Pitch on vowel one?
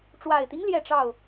low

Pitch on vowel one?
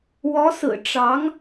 rising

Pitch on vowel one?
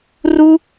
high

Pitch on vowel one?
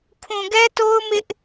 low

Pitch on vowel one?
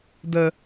low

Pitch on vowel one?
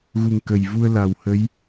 low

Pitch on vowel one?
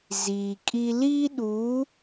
low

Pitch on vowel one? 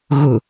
low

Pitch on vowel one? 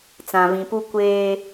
low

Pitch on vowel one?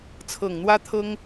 low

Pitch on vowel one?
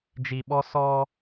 low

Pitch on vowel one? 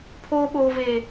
high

